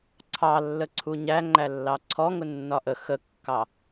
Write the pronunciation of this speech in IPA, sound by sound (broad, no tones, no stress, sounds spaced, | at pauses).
ǀʰ ɑ lː ə ǀʰ u ɲ æ ŋ͡ǃ æ lː ɑ ǀʰ ɔ ŋ ʊ nː ɒ ʔ ə x ə kː ɑ